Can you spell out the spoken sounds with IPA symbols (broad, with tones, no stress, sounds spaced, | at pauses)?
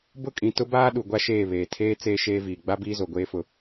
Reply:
b ʊ˦˨ kʼ ĩ˨ t ʊ˦ b aː˦ ɗ u˨ ɡʷ a˦ ʃ eː˦˨ β eː˨ tʰ eː˦ t͡s eː˦ ʃ eː˦ v iː˨ ɡ͡b a˦ b iː˦ z o˨ ɡʷ eː˦ f ʊ˦